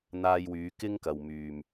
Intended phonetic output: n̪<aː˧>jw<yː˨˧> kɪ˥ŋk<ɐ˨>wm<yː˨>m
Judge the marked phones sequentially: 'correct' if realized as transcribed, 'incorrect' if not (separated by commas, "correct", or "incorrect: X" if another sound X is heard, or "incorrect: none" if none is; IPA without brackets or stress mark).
correct, correct, correct, correct